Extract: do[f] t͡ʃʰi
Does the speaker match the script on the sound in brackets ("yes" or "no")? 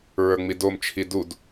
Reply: no